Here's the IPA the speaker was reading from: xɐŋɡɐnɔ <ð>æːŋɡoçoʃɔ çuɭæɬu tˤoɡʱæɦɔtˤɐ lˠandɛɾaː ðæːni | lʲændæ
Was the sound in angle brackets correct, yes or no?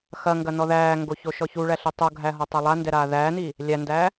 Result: yes